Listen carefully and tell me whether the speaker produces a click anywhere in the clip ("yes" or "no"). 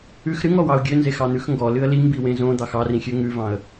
no